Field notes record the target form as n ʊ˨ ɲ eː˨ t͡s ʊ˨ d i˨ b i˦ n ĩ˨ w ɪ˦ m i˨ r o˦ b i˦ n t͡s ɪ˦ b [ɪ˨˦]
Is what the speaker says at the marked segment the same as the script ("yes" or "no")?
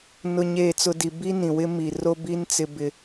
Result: no